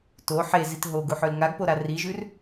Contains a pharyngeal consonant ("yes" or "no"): yes